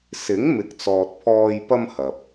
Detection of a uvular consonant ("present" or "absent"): absent